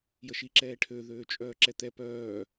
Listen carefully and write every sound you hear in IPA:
j ə ʃ i ǁ ɛː ʈʰ ø ð øː t͡ʃʼ œː ǁ ɛ t̪ ɛ p œː

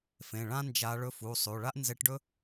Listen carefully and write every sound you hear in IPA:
f ẽ˩˧˩ ɭ ã˥ n d͡ʒ a˧˥ ɭ ɵ˧˥ f u˩˧˩ sˤ ʉ˩˧˩ ɭ a˥ ʔ n z e˧˥ ʈ ɖ ɵ˥

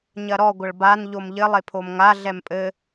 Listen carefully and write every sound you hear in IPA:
ɲ ɐ ɾ ɔ ɡʷ ɐ ɭ b a n ʎ o m ʎ ɘ lˠ e pʰ o m ŋ a ɮ ɛ m pʼ ɘ

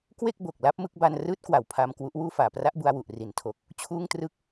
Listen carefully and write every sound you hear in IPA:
k w e˥˩ k̚ b o˨˩ k̚ l a˦˥ p̚ m ɯ˦˥ k̚ b a˧ n r ɯː˦˥ t̚ k w a˨˩ w pʰ aː˧ m k w u˦˥ ʔ w uː˥˩ f aː˨˩ p r a˦˥ ʔ b u˧ a̯ w u˨˩ ʔ r i˩˦ n tʰ o˨˩ k̚ | t͡ɕʰ uː˥˩ ŋ t r ɯ˥˩ k̚

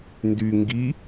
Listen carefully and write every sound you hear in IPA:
n d y ŋ ɡ i

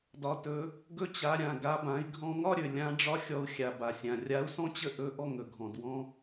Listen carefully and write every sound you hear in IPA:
d ɒ˩˧ t ɵ˩˧ | ɡ ɵ˧ t͡ɕ a˩˧ ɾʲ ã˩ ɡ a˩˧ b ã˩˧ i̯ ɡʱ ɔ̃˧ ŋ ɒ˥ ɾʲ ɵ˩ lʲ ã˧˥ ɖ͡ʐ ɒ˥ xʲ ɔ˧ u̯ xʲ a˩ b a˩ sʲ ã˩ rʲ a˧˥ u̯ s ɔ̃˥ t͡ɕ ə˥ ʔ ɵ˧˥ ʔ ɔ˥ ŋ ɵ˩ ɡʱ ɔ̃˩ d w ɔ̃˥

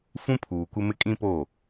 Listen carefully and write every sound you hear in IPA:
f ũ˦ pʰ uː˨ kʷ ɪ˦ m ɪ˦ kʼ ĩ˦ p o˦˨

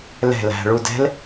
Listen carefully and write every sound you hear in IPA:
l ɛ̤ l æ̤ ɭ u d ɛ̤ l

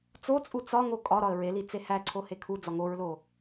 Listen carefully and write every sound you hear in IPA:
t͡s o t͡sʼ u t͡s ɒ ŋ o kʼ ɒ ɾ ɒ ə̯ ɹ e l i t͡s e h æ ǀʰ o h e kʰ u d͡z ɒ ŋ o ɹ l o

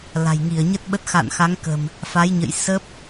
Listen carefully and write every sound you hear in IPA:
l a̤˨˩ j ŋ i˧˩ ə̯ ɲ ə˦˥ t̚ ɓ ə˦˥ t̚ x a̰ː˧˨ n x a˨˦ ŋ k ə̤˨˩ m | f a˨˦ j ɲ ə̰˧˨ j s ə˦˥ p̚

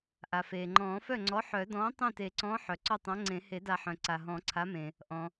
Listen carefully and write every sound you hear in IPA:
ʔ a˩ f eː˩ ŋ͡ǃ ɔ̃ː˨˩˦ f œ˥˩ ŋ͡ǀ ɔ˨˥ ħ œ˨˩˦ d ɔ̃ː˨˥ tˤ œ̃˥˩ t e˨˩˦ ǀ ɔ̃ː˨˥ ħ œ˩ ǀ ɔ˥˩ tˤ ã˨˥ ŋ͡ǀ ẽ˨˩˦ h e˨˩˦ d a˨˩˦ ħ œ̃˩ ǀ a˩ ɦ ɔ̃˨˩˦ ǀʰ a˨˥ m ẽ˩ | ʔ ɔ̃˩

